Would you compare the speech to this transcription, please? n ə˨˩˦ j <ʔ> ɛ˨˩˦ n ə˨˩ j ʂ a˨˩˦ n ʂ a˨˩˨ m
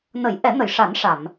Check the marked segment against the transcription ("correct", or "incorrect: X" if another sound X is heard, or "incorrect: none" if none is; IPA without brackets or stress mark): correct